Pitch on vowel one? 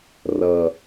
low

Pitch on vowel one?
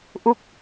falling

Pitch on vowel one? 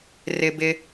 low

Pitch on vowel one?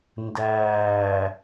low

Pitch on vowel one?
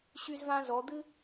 high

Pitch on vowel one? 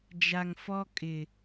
low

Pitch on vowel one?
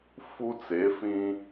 high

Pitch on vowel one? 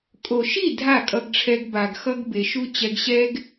low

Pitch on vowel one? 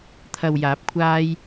low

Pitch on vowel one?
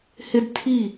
high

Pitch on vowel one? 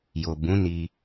low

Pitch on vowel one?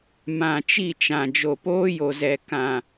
low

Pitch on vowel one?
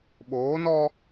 rising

